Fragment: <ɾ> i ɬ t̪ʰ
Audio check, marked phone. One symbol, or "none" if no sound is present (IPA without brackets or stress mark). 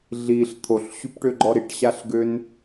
ɮ